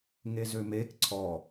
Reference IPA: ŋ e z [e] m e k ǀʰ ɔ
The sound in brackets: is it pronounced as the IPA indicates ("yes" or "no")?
no